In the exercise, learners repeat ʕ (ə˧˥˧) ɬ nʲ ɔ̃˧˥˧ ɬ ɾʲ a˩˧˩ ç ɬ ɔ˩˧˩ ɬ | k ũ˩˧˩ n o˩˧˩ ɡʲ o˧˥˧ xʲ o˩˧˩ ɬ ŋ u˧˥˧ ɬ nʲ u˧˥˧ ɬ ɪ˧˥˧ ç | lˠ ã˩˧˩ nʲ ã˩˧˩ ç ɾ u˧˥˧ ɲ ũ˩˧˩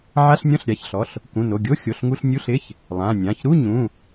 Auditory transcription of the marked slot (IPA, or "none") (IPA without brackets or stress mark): a˧˥˧